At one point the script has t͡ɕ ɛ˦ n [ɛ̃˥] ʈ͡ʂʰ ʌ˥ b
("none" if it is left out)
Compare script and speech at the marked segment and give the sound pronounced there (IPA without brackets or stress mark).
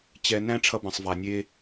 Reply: æ̃˥